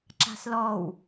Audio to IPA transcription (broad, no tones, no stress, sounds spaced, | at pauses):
ǁ a̤ s l ɔ w